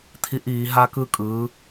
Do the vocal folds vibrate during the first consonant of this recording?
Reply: no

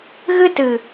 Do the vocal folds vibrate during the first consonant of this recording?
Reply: yes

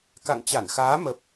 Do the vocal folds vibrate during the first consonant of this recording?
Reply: no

